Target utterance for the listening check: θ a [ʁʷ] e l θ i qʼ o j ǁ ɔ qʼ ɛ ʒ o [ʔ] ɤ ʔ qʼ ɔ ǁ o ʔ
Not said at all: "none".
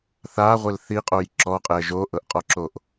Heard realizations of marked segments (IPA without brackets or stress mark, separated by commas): ʁʷ, ʔ